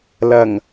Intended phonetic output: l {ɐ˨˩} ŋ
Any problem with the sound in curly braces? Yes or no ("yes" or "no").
no